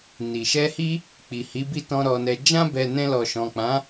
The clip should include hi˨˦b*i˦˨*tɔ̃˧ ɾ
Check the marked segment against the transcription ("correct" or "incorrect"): correct